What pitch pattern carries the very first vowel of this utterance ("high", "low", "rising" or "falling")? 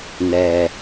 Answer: low